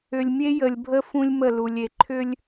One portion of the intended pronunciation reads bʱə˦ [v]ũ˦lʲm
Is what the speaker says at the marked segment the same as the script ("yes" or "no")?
no